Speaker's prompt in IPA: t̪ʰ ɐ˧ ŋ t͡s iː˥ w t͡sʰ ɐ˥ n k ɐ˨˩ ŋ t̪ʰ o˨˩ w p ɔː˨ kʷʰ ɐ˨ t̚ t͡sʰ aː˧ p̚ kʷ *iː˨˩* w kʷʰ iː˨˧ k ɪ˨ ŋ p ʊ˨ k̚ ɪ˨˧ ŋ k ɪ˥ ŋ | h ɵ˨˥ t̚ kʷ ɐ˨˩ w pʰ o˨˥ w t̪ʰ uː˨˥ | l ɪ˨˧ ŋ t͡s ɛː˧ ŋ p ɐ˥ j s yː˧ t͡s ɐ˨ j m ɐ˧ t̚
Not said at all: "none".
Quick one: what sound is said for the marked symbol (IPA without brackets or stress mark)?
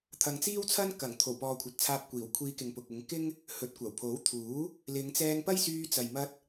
iː˨˩